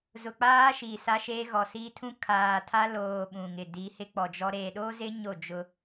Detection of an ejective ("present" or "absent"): absent